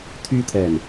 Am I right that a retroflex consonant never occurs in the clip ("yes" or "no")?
yes